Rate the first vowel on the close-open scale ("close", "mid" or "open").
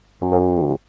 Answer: mid